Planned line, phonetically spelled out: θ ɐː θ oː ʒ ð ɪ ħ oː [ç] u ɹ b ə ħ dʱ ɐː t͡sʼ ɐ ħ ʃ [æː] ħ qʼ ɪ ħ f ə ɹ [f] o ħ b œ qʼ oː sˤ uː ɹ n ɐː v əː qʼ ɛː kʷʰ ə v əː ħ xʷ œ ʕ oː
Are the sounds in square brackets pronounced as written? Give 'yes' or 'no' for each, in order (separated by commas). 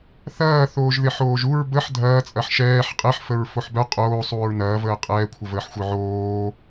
no, no, yes